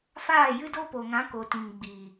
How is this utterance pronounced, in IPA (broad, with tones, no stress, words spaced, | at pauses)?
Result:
faː˦˨jɨ˦ do˦po˨ŋã˨˦ ko˨tĩ˨ŋ ɡ͡biː˨